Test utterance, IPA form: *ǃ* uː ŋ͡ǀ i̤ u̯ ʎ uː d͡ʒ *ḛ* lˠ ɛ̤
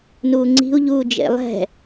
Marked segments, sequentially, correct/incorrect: incorrect: n, correct

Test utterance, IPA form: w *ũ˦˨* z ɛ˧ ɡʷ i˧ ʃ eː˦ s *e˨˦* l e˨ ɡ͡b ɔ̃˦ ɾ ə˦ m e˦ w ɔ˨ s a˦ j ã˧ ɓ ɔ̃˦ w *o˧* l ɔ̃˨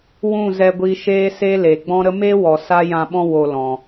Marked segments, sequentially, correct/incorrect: correct, incorrect: e˦, correct

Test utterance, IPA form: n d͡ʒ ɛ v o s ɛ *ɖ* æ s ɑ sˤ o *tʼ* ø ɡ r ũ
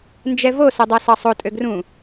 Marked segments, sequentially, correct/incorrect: incorrect: dˤ, correct

